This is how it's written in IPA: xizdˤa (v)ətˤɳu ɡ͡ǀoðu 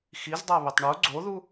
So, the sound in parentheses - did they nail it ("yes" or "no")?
no